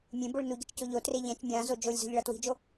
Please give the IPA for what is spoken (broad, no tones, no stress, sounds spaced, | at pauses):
mʲ ẽ b o ɭ n u ɟ i̤ t͡ʃ c o ʎ o t r e ʎ ɛ̃ t͡ʃ mʲ ã z o d͡ʒ o lʲ z o̤ ʎ ɭ ʌ t w i̤ d͡ʒ o